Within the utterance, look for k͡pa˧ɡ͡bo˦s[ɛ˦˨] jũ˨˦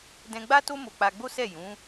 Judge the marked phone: correct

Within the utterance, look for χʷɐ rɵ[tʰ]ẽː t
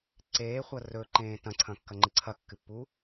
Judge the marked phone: incorrect: ǃ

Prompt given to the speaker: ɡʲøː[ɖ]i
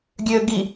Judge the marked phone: incorrect: ɡ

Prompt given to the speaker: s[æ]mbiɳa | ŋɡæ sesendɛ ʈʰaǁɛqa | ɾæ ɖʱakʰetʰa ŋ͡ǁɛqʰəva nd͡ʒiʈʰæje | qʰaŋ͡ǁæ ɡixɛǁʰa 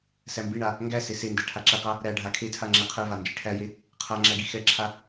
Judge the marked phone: correct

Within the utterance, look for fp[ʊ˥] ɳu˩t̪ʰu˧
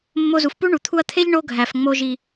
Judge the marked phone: incorrect: u˥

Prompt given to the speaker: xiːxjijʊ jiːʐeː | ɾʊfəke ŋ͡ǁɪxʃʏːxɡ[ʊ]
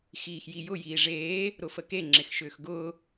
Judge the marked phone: incorrect: ʊː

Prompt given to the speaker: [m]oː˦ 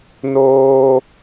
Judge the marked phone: incorrect: n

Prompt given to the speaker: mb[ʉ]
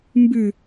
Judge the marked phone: correct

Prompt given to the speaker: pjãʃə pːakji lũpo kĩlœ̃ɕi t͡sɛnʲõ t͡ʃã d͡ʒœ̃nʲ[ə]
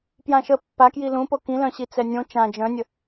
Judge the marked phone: correct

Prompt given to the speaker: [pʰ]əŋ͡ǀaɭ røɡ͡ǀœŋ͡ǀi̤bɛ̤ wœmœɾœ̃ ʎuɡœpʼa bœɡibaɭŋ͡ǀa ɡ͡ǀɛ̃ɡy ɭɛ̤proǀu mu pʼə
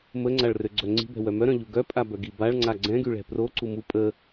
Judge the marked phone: incorrect: m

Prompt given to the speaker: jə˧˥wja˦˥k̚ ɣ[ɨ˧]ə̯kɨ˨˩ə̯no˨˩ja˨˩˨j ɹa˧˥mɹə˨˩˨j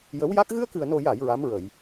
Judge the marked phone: correct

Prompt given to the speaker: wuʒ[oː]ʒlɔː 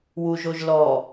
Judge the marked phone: incorrect: o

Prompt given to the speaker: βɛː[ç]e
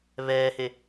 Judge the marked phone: incorrect: h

